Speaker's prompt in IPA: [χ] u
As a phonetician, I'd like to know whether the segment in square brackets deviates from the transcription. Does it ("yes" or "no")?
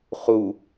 no